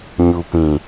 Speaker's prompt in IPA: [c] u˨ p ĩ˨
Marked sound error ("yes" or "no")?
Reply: yes